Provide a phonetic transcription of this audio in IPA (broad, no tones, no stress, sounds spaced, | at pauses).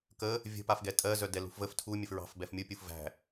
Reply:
k ə | vʲ ə̤ p a f ɡ ɛ tʼ ɜ z œ d ɛ l ṳ f v ə f tʰ u mʲ ə f ɹ ɑ̤ f b ɛ f mʲ u pʲ u f v æ̤